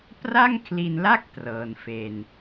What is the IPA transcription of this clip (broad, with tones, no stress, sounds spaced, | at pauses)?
p r a˥˩ ŋ kʰ l i˧ n l a˥˩ k̚ t r ɤː˧ n f e˧ n